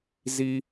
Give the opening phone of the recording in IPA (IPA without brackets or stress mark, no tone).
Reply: z